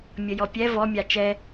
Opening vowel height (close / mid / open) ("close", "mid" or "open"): mid